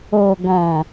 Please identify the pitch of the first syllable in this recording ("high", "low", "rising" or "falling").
low